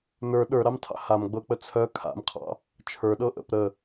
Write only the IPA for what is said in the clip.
n ə˞ ɗ ə˞ ɾ ɑ m tʰ ɑ̰ h a m ɡ͡b ɤ k͡p ə t͡sʰ œ kʰ a̰ m qʰ ɑ̰ | t͡ʃʰ ə˞ ɗ ɤ ʔ ə̰ p ɾ ə

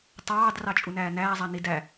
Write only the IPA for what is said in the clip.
tˤ ɑː d r ɑ t͡ʃʼ u n æː n æː zˤ æ n i d æ

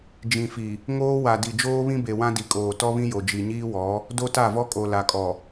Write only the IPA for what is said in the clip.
d͡ʒ ĩ˨ f i˨ | ŋ oː˦ w a˨ d i˨ d͡ʒ oː˦ β ĩ˦ b e˨ w ã˦ d i˨ kʼ oː˨ t ɔ˦ β ĩ˦ j o˨ d͡ʒ i˨ ɲ iː˦ w ɔ˨˦ | d o˦ t a˦˨ v ɔ˦ kʼ o˨ l a˨ kʼ ɔ˨

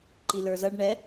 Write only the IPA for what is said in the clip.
ǃ i l ə˞ z ʌ ɖ ɳ ɛ

